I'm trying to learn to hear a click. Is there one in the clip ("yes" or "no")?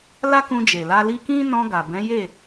no